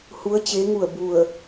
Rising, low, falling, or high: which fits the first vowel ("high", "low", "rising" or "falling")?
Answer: rising